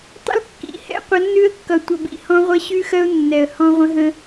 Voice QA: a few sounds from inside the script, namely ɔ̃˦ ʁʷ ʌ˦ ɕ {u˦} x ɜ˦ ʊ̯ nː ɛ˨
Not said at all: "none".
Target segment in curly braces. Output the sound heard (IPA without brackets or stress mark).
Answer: ʉ˦